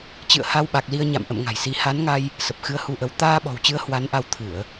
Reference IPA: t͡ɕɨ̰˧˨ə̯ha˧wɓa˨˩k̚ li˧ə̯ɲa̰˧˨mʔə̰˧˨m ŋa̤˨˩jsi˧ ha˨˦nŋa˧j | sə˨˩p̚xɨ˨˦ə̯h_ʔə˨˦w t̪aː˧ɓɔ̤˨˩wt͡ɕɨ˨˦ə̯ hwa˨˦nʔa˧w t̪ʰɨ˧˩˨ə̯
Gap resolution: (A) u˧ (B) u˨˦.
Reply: A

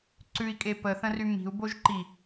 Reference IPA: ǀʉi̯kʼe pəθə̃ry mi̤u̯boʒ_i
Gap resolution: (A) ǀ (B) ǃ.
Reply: B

